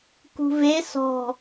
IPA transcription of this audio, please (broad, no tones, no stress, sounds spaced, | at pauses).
k ṳ v e s ɔ̤